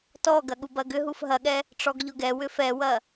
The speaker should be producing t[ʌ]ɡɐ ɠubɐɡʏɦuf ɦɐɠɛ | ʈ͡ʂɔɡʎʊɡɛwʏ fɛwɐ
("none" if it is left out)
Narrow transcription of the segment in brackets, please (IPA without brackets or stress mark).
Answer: ɔ